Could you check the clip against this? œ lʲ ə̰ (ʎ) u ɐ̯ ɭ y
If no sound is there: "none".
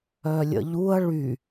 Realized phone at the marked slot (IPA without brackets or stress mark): ʎ